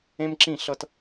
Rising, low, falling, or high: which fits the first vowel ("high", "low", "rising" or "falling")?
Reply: high